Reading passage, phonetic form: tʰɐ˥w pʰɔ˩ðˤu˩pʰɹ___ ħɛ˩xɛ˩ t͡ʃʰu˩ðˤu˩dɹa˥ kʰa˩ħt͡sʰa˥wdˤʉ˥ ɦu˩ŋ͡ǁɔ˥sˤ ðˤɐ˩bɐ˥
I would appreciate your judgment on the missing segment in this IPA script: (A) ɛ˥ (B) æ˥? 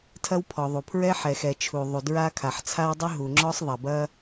A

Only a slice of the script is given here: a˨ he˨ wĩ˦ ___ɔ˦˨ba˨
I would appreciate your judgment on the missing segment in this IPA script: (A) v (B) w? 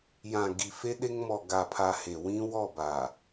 B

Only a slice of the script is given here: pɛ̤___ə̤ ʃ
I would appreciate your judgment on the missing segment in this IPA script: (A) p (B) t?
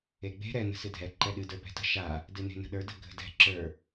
B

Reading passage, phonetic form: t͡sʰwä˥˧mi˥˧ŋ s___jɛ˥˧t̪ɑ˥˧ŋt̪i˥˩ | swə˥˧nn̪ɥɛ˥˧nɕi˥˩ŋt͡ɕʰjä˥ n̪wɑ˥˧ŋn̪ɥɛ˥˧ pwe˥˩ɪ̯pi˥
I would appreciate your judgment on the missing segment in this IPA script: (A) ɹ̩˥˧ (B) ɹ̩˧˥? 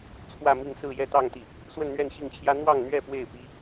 A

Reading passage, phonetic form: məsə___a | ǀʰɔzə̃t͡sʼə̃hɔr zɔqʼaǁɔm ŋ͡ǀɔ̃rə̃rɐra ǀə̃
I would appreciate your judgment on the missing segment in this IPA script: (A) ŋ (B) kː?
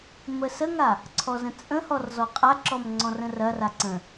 A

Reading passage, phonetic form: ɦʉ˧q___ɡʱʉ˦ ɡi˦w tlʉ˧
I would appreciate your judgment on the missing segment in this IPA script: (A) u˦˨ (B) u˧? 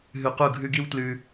A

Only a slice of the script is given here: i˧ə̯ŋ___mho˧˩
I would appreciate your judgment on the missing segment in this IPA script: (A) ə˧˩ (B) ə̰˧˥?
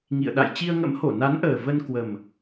B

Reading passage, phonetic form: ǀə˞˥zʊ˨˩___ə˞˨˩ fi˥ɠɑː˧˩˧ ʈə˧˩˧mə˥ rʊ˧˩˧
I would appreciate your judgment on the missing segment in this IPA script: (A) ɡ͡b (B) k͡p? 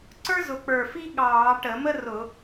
B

